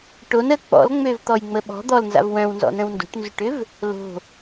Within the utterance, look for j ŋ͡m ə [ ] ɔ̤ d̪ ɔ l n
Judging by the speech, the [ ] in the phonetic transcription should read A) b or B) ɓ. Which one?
B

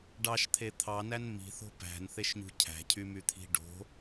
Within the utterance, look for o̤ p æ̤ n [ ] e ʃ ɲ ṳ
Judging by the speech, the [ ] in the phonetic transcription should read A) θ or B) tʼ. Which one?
A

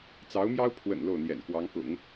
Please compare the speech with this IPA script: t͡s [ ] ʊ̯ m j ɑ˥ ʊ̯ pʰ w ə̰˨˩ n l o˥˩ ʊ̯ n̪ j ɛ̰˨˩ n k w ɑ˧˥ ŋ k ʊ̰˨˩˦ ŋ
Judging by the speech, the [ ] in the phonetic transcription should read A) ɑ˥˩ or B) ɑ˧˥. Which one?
B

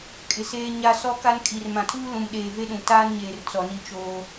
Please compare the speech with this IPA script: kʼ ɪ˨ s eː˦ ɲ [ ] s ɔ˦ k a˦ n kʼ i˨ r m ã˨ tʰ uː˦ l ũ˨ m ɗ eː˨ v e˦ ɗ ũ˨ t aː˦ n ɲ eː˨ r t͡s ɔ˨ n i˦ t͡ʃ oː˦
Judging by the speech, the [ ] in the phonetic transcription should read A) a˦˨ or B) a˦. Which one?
B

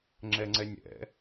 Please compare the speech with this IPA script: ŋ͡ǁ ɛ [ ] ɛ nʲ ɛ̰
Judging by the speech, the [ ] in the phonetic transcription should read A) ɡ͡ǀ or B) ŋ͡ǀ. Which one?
B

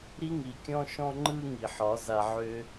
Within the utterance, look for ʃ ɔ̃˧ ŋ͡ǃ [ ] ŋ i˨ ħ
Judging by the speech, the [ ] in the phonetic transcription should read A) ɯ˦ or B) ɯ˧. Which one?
B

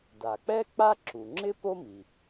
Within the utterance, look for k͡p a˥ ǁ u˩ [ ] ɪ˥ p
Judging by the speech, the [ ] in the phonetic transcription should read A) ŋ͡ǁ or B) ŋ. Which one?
A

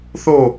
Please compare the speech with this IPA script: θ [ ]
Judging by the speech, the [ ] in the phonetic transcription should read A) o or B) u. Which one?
A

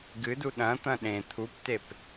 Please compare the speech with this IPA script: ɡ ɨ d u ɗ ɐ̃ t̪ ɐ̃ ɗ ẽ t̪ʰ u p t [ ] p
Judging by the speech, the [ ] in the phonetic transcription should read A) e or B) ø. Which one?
A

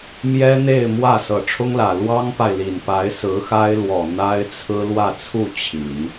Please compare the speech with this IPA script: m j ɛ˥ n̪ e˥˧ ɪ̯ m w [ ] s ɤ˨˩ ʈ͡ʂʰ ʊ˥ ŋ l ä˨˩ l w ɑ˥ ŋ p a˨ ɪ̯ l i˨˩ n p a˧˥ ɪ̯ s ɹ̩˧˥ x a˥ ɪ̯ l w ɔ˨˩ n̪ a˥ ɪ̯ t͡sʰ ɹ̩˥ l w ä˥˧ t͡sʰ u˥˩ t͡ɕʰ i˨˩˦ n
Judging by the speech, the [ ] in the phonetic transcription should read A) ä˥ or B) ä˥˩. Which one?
B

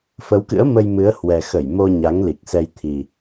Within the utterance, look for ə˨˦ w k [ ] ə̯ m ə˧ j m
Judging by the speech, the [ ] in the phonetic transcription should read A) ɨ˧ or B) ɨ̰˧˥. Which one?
B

